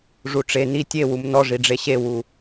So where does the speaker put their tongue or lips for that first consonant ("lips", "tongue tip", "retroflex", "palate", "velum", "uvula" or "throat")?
retroflex